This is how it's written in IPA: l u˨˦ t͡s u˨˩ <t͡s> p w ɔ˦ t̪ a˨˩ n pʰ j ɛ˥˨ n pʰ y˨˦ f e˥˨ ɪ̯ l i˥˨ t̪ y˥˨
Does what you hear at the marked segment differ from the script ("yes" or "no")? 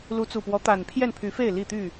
yes